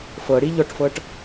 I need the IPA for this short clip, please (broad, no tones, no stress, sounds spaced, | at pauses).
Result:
f ɤ ɽ i ʎ ɔ ʈ f ɤ ʈ